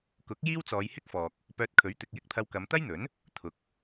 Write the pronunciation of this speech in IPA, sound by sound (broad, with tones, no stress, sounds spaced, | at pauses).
k ʊ˨˥ k̚ j iː˥ w t͡s ɔː˨˧ j h ɪ˥ k̚ f ɔː˨ k̚ | p œː˧ t̚ kʰ ɵ˨˥ ɥ t̪ ɪ˨ k̚ j ɪ˥ k̚ t̪ʰ ɐ˧ w k ɐ˨˧ m t̪ ɐ˥ j n̪ ɵ˨˥ n | t̪ʰ ʊ˨ k̚